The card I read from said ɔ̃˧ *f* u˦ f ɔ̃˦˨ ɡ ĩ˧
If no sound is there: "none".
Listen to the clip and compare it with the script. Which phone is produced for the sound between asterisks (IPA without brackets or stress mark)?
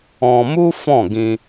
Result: m